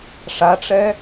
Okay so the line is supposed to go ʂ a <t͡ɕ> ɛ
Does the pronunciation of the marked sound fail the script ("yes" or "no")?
yes